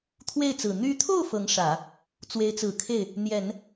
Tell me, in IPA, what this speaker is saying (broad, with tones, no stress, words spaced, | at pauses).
t̪ʰwe˥˩ɪ̯t͡sɹ̩˨˩ n̪y˧˥t̪ʰo˥˩ʊ̯ fɤ˧˥ŋʂä˨˩˦ | t͡swe˧˥ɪ̯t͡sɹ̩˨˩kʰe˥˩ɪ̯ | n̪jɛ˨˩˦n